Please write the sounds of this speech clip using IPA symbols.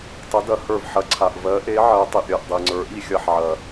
tˤ ə˧˥ d ɐ˧˥ h ə˞˦˨ v ħ ɐ˧˥ ǀʰ a˨ ʔ v ɜ˧˥ ʔ e˧˥ ʕ ɜ˧˥ tˤ i˨ ʔ ɾʲ ɜ˨ ʔ dˤ i˨ ŋ͡ǀ ə˞˧˥ ʔ i˦˨ xʲ ɐ˦˨ ħ ʕ ɐ˨

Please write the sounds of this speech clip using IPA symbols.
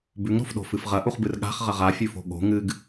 b ʉ ŋ ɾ o̤ f ɗ o̤ f ɨ f ʁ ɐ ʔ u χ b ɨ r ɠ a̤ χ ʁ ɐ ʁ a fʲ ʉ f o̤ ɠ o̤ ŋ ɨ ɡ

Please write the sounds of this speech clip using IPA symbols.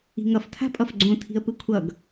i̤ ŋ ʌ f tʰ a̤ pʼ ʌ f ɡ͡ǀ õ tʰ i̤ ə̯ p ɯ kʷʰ ʌ ɡ

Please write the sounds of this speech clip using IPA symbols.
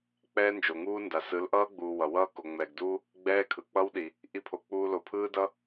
k͡p ɛː˦ n d͡ʒ o˨ ŋ uː˦ n d a˨ s ɯ˨˦ l ʔ ʌː˦ ɡ͡b uː˨ w ʌ˨ w ʌː˦ k o˨ ŋ͡m ɛ˨ ɡ d uː˦ | ɡ͡b ɛː˦ kʰ ɯ˨ k͡p ʌ˦ w ɗ i˨ | ʔ i˧ pʰ o˨ k͡p uː˧ l o˨ pʰ ɯː˦ d ʌ˦

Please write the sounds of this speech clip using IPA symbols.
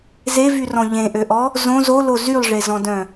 z e v y r ɔ̃ ʎ ẽ ʔ ø ʔ ɔ | z õ z o l o z y lˠ ʐ e z ɔ̃ d œ̃

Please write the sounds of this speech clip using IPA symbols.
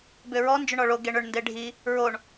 b ʏ ɹ ɔ n d͡ʒ ʏ ɳ ɔ ɭ o ɡ e ɳ ʏ ɳ n d e ɖʱ i | ɹ o ɳ

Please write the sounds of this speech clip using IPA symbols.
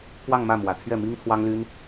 p w ɑ˥˧ ŋ m ä˥˩ m w ä˨˩ t̪ʰ ɥ ɛ˥˩ m i˥ ŋ t̪ʰ w ɑ˥ ŋ l y˥ n

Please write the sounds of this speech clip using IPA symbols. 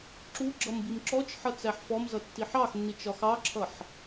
ǁ u ɡ͡ǁ ʌ m b i m ǁ ɔ t͡ʃ ħ ʌ t͡s æ ħ f ɔ m z ʌ tː i ħ ɑ x nː i t͡ʃ ɒ x ɑ ǁʰ ʌ ħ

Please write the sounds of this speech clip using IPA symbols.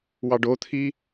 w ɑ ɖ o t̪ʰ i

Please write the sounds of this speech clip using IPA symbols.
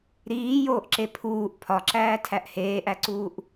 ɾ iː j oː ʔ ǁ e pʰ uː ʔ pʰ ɒ ǁ æː tʰ æ ʔ h eː ʔ æ ǀ uː ʔ

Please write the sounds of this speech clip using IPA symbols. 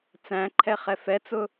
t͡s æ̃ ǃʰ ɛ χ ɛ f ɛ t͡s ʊ

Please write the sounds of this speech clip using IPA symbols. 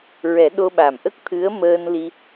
ɹ ɛ˨˩˦ ɗ o˧ ɓ a˨˩ m ʔ ə˦˥ k̚ t̪ʰ ɨ˧˥ ə̯ m əː˧ n l i˧

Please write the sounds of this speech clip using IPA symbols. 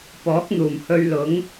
p ɔː˨˥ k̚ n̪ uː˨˩ m h ɵ˧ ɥ l ʊ˨˥ ŋ

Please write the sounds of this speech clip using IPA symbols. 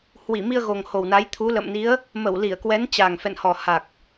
h w i˧˩ m i˧ ə̯ ɣ o˨˩ ŋ h o˨˩ w n a˨˦ j t̪ʰ u˨˦ l ə̰˧˨ m n i˨˦ ə̯ | m ə˧˩ w l i˧˩ ə̯ k w ɛ˨˦ n t͡ɕ a˨˩ ŋ f ɛ̰˧˨ n h ɔ˨˩ h a˨˩ k̚

